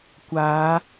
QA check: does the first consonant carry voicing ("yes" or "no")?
no